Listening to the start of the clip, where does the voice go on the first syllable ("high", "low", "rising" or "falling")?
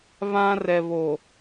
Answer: high